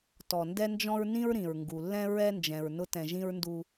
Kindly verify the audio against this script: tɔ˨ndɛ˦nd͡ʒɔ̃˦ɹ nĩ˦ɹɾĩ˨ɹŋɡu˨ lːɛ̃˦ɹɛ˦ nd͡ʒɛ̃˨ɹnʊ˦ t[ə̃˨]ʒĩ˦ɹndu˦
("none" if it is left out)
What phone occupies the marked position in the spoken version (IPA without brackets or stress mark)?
ɛ̃˨